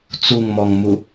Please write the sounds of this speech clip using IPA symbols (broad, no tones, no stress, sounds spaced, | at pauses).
t͡s u ŋ m ɔ ŋ m u